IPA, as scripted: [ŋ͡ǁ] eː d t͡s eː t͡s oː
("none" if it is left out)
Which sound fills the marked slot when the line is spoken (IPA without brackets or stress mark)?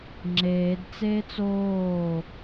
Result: ŋ͡ǁ